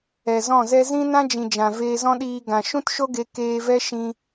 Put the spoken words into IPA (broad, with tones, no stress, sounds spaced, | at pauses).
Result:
ɛ˨ z ɔ̃˦˨ z ɛ˦ z ĩ˦ n ã˦ d͡ʒ ĩ˨ d͡ʒ ã˨ v eː˧ z ɔ̃˦ ɗ iː˧ ɡ ã˨ ʃ ũ˦ t ʃ o˦ ɡ e˧ k eː˧ v ɛ˦ ʃ ĩ˧